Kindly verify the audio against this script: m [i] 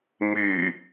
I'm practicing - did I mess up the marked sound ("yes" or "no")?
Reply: yes